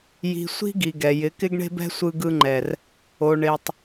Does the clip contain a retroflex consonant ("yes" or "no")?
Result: yes